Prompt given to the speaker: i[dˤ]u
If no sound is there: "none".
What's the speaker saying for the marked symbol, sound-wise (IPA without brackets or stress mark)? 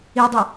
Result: dˤ